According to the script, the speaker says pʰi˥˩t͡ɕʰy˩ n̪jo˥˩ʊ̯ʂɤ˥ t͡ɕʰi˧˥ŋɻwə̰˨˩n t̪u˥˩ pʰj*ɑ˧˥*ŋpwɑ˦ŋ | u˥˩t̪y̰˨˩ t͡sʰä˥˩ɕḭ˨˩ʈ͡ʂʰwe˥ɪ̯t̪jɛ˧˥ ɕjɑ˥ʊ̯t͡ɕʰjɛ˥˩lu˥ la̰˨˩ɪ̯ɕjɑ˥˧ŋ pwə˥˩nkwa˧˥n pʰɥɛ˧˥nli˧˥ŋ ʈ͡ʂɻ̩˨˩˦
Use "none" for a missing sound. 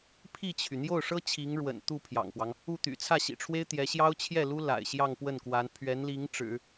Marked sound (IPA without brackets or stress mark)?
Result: ɑ̰˨˩